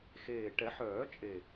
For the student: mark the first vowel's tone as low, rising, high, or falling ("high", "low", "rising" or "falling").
low